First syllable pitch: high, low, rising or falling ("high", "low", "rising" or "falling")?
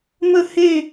falling